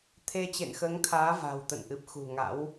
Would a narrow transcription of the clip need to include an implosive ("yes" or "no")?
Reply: no